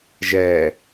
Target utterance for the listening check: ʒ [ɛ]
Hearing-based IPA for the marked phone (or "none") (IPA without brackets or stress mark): ɛ